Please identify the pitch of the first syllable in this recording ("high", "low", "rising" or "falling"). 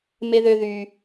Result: high